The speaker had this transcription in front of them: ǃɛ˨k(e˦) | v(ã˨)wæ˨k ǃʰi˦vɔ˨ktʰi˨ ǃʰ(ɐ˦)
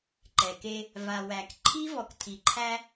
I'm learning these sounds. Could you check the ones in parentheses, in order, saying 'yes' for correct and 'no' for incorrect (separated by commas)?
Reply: yes, no, no